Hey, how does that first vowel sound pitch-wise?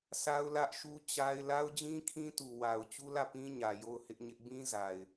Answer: high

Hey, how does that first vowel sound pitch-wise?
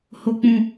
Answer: high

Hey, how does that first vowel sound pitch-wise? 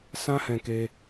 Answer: high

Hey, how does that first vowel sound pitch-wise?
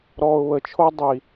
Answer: low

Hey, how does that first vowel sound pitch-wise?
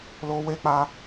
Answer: high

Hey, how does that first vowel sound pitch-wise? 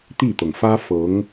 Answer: falling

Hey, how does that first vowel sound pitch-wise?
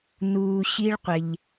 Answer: low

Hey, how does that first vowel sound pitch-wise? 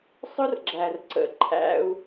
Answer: high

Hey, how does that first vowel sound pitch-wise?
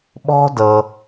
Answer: high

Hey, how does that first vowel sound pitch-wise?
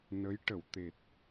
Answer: rising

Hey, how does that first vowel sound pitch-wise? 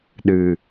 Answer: low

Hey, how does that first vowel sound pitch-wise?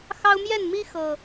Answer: high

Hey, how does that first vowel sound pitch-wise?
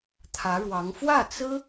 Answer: rising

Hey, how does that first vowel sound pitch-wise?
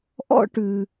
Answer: high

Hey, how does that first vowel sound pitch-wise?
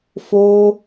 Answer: high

